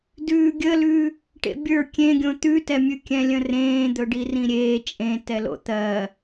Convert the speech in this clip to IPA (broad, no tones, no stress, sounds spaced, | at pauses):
d ʉː ɡʲ ə l ʉ | ʈ ḛ bʲ ə˞ kʲ ẽ ɡʲ õ t̪ ʉ t ɛ mʲ ʉ kʲ ɛ̃ lʲ ə̃ r ẽː d̪ ɵ ɖ i r ĩ ɾʲ eː t͡ʃʼ ẽ t ɛ l o̰ t̪ ɜ